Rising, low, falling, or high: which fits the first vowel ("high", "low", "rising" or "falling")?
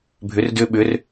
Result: rising